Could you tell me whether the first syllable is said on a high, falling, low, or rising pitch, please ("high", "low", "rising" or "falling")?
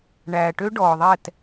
low